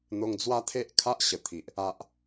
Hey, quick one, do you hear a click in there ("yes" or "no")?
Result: no